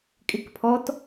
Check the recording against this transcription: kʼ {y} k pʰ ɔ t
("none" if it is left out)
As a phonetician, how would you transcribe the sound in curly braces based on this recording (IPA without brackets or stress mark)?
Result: ɪ